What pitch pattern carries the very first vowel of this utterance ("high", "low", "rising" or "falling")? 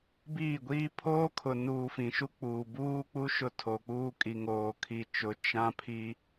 falling